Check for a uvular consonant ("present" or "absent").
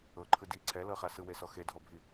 present